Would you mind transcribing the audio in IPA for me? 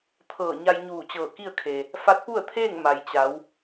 t̪ʰ ɤː˧˩ ɲ a˧ j ɲ uː˧˩ t͡ɕ ɤː˧˩ k i˥˨ ə̯ kʰ e˩ | f a˧˥ t̚ p u˥˨ ə̯ t̪ʰ eː˥˨ ŋ m a˩ j t͡ɕ a˩˧ w

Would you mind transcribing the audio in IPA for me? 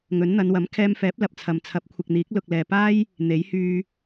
ŋ ɵ˨˥ n n̪ ɐ˨˧ n w ɐ˨˥ m kʰ ɛː˧ m f ɛː˨˥ p̚ l ɐ˨ p̚ t͡sʰ ɐ˨ m t͡sʰ ɐ˨˥ p̚ kʷʰ ɪ˨ k̚ n̪ iː˨˥ k̚ l ʊ˨ k̚ l ɛː˨ p aː˥ j | n̪ e˨˥ j h yː˧

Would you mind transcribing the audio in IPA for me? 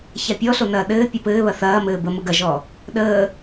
ç a pʲ ɔ ɬ o n ɐː ɗ ɘː pʲ o p ɘː β ɐ θ ɐː m ɘː b ə m ə ɡ ɐ ʒ ɔ | ɗ əː

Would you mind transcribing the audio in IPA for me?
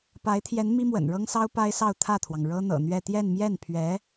p a˧˥ ɪ̯ t̪ʰ j ɛ˧˥ n m i˥ m w ə̰˨˩ n ɻ ɤ˥ ŋ s ɑ˥ ʊ̯ p a˥ ɪ̯ s ɑ˥˧ ʊ̯ t̪ʰ ä˥˩ t̪ʰ w ɑ˩ ŋ ɻ ɤ˥ n̪ ɤ̰˨˩ n̪ ɥ ɛ˥˧ t̪ j ɛ˥˧ n m j ɛ˥˩ n pʰ ɥ ɛ˧˥

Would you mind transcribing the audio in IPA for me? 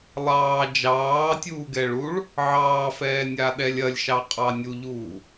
lˠ ɑː d͡ʒ ɑː tʲ uː ɡ ɛ ɭ u ɭ | ʕ ɑː f ɛː nʲ a ɗ ɛ lʲ ɐ lʲ ʃ ɑ qʼ ɑ nʲ u ʎ uː

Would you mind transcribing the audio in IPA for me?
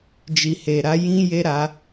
d͡ʒ i˧ h e˧ ɾ a˦ j ĩ˦ j e˦ ɾ a˦

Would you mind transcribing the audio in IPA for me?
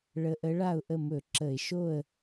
ɭ ə˧˥ ʔ ə˧˥ ɭ a˥˨ ʊ̯ ʔ ə˥˨ m ɵ˧˩˧ ǁ ə˧˩˧ ɪ̯ ʃ o˥˨ ə̯

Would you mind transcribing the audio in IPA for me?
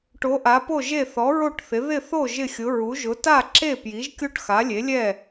ʈ o˧˥ ʔ a˧˥ p o˥˧ ʒ e˥˧ θ ɔ˧˥ ɹ o˥˧ ʈ θ ɪ˧˥ ð ɪ˥˧ θ o˥˧ ʒ ɪ˥˧ xʲ ʊ˧˥ ɹ u˧˥ ʒ ʊ˧˥ t a˥˧ ǁ e˥˧ p j i˧˥ ʒ kʲ o˥˧ ʈ x a˧˥ lʲ e˧˥ lʲ ɛ˥˧

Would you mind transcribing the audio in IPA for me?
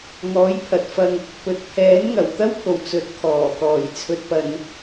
ŋ ɔː˨˥ j pʰ ɐ˨ t̚ f ɐ˧ ŋ | p ɵ˨ t̚ pʰ ɛː˨˥ n ŋ ɐ˨˩ w t̪ ɐ˥ w pʰ o˨˩ w t͡s ɵ˨˥ t̚ kʰ ɔː˨˩ k ɔː˨˩ j t͡sʰ ɵ˨ t̚ p ɐ˨ n

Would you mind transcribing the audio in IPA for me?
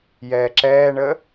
j ɛː ǁ ɛː ɳ ə

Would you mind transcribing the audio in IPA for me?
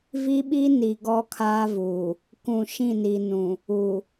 v i˦ ɓ i˦ n i˨ ɡ ɔ˦ kʰ aː˦ v uː˨ | k ũ˨ ʃ ĩ˦˨ n i˨ n ũ˨ | u˨

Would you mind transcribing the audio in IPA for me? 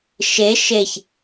ʃ e ʃ e ç

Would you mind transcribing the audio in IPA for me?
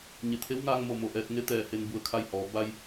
ɲ e˩ t̪ʰ e˧˥ w ŋ aː˧ ŋ m o˧˩ m o˧˩ ʔ ɛː˧ t̚ ŋ e˧˥ t̪ ɛː˧˩ h e˧ n b u˧˩ ə̯ kʰ a˥˨ j h ɔː˩˧ b a˧ j

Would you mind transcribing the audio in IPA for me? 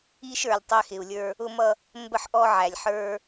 i˦ ʃ ə˞˨ lʲ tˤ æ˦ x ɪ˨ u̯ lʲ ə˞˦ | ʊ˦ m ʌ˦ | m b ə˦˨ ħ ʔ ɔ˦ ʕ æ˨ lʲ ħ ə˞˦

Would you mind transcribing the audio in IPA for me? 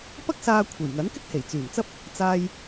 p ɐ˥ k̚ s aː˧ kʷʰ e˨˩ j ŋ ɐ˨˥ n k ɪ˥ k̚ h e˨˩ j t͡s yː˨˩ m t͡s ɐ˥ p̚ | t͡s aː˥ j

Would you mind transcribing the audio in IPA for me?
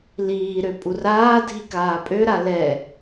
l iː ɾ ø pʼ u r aː dʱ i k aː pʼ ø ɾ a l ɛ

